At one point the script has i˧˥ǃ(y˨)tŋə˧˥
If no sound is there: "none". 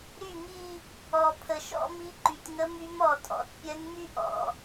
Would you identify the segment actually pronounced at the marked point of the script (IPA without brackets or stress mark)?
y˨